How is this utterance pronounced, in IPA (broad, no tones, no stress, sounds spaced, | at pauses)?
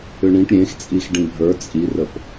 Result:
ʏ ɳ ĩ ʈ ɾʲ ẽ x t͡sʼ i x ɖ ĩ bʱ ə˞ t͡sʼ i r ə p